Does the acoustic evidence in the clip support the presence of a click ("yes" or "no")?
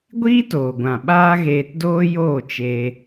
no